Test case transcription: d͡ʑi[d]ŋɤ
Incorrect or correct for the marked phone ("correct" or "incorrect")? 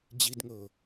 correct